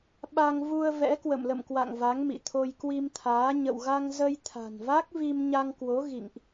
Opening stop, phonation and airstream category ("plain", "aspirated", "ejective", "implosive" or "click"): implosive